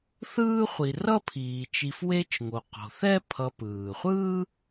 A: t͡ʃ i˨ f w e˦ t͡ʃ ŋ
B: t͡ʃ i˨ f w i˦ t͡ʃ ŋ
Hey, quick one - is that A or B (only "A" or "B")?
A